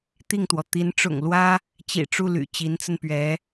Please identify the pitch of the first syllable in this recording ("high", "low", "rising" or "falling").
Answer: falling